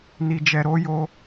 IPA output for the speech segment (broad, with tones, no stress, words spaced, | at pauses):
ni˨d͡ʒɛ˨ɾo˨˦jo˧